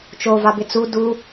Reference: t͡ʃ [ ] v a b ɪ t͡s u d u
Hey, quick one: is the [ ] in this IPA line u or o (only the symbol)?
o